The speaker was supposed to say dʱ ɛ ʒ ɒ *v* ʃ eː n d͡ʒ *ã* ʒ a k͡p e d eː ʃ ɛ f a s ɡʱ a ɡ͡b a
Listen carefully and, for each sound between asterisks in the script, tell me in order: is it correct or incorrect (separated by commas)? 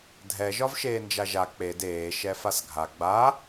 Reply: correct, incorrect